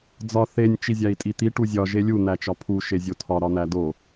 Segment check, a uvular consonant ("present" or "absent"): absent